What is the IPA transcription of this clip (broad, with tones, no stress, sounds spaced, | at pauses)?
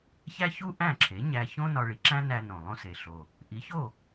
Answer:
ç æ˥ ç u˥ ʔ æ̃˥˩ ǁʰ e˩˥ ɲ æ˧ ç õ˥ n ɒ˧ ɭ i˩ ǁ æ̃˥ n æ˧ n õ˩ lˠ õ˧ s e˩ ɬ o˩ | ʔ i˩˥ ç o˥˩